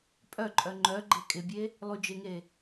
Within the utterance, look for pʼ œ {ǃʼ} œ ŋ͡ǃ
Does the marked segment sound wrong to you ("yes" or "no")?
no